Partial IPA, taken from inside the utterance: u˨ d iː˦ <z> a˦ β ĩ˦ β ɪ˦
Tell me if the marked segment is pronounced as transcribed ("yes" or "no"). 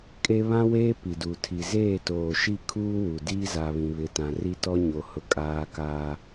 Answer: yes